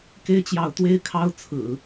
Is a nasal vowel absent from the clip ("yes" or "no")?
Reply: yes